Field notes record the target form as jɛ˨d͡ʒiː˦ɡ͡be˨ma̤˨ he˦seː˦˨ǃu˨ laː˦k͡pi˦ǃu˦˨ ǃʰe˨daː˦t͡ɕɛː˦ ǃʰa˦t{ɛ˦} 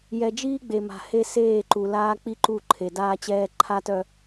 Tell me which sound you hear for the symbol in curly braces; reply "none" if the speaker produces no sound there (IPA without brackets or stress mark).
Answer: œ˦